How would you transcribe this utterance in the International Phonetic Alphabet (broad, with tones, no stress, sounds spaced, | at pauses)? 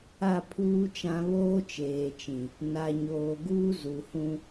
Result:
a˦˨ pʰ uː˦ t͡ʃ ã˦ β oː˦ t͡ʃ eː˨ t͡ʃ ĩ˨ | n a˨ ɲ oː˨ ɡ uː˦ z u˨ h ũ˦